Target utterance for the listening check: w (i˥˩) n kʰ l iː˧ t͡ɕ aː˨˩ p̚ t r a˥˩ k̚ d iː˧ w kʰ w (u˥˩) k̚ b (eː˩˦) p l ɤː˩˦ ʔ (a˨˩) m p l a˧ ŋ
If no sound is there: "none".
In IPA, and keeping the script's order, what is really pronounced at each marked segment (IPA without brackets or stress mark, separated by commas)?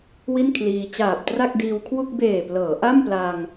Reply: i˥˩, u˥˩, eː˨˩, a˥˩